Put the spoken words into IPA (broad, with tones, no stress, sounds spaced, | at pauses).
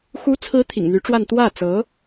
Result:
x u˧˥ t͡sʰ ɹ̩˧˥ t̪ʰ ḭ˨˩ ŋ n̪ y˧˥ ʈ͡ʂ w a˥˧ n t̪ w ä˥˩ t͡s ɤ˧˥